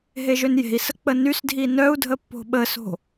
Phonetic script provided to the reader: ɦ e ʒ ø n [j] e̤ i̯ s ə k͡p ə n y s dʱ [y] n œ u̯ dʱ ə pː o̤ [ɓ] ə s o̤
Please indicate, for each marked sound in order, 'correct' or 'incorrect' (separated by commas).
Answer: correct, incorrect, correct